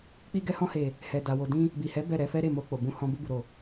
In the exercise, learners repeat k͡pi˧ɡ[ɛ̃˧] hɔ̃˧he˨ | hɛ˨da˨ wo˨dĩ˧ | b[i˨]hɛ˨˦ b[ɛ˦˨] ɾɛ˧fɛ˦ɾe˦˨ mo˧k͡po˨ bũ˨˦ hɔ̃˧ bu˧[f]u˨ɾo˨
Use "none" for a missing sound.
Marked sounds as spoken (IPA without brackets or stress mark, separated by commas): ɛ˧, i˨, ɛ˦˨, b